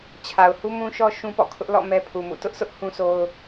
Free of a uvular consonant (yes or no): yes